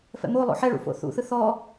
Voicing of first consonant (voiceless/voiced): voiceless